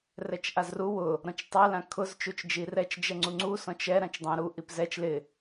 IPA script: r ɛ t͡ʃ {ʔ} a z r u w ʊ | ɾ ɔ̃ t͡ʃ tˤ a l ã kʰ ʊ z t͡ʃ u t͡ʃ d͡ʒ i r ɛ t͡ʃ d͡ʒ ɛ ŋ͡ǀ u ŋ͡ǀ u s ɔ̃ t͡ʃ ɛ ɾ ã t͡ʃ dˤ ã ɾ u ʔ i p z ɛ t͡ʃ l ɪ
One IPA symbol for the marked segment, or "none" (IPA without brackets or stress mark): ʔ